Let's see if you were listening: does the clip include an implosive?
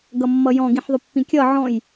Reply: no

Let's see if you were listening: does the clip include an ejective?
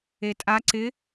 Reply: yes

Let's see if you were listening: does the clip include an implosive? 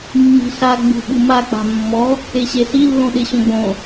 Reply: yes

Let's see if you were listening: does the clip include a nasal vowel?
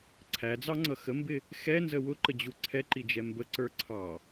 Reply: no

